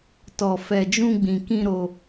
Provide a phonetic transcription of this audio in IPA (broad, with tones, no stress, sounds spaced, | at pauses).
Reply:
t ɔ˨ f ɛ˨ d͡ʒ ũ˧ ɡ͡b ĩ˨ k ĩ˧ ɾ o˧